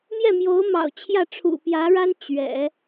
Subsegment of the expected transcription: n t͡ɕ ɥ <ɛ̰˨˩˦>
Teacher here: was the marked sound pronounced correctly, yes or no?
yes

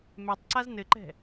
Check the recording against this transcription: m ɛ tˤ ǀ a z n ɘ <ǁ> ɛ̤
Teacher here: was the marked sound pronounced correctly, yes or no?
no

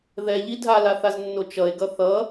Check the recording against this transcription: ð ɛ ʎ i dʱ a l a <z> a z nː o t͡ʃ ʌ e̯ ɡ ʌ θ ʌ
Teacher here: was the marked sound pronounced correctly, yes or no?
no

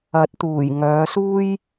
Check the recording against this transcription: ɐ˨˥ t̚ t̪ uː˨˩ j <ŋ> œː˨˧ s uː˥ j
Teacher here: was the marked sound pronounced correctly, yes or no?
yes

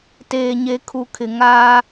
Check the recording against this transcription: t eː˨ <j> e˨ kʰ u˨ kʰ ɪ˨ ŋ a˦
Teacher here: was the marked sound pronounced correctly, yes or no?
no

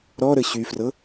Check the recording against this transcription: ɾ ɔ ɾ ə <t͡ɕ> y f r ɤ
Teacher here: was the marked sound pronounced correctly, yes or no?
no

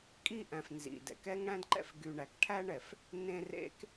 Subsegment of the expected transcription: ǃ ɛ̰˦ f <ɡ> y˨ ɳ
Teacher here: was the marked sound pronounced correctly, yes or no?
yes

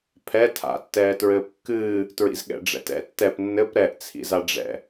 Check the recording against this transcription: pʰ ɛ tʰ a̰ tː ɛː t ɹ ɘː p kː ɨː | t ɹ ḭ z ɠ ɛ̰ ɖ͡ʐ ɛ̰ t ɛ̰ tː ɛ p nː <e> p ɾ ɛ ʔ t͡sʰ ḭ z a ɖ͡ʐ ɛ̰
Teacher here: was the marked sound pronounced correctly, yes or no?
no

